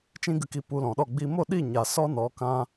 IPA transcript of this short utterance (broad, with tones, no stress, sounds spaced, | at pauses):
t͡ʃ ĩ˧ ɡ ɨ˨ k i˨ p u˧ l ɔ̃˨ ɗ ɔ˦˨ ɡ͡b i˧ m o˦˨ ɗ i˦˨ ɲ a˨ s ɔ˦ n ɔ˨˦ k ã˦